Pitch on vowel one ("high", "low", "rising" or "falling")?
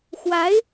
rising